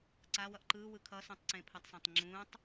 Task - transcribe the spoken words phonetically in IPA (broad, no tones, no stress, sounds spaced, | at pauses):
ǀ a w ʌ ʔ ǃ ɯː w ɯ kʰ ʌ s ũ tˤ ǀ ẽ pʰ a tˤ s ã tˤ ŋ͡ǁ ũː tˤ